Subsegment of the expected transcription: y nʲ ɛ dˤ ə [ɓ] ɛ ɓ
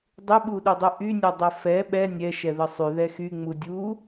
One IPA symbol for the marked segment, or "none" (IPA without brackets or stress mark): f